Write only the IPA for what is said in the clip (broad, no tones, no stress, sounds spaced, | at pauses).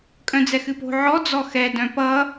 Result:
kʼ œ̃ d͡z ɛ x ɨ p o̤ ʕ ɔ d͡z ɔ x ɛ d œ̃ p ʌ